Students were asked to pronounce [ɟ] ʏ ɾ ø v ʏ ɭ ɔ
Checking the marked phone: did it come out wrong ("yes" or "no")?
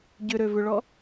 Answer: no